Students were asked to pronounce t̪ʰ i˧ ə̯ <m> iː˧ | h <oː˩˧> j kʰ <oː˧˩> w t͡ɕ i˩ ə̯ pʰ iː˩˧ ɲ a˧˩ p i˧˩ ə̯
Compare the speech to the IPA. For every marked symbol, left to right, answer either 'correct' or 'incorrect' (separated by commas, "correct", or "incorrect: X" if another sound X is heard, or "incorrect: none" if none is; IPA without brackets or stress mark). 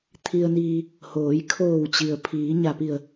incorrect: n, correct, correct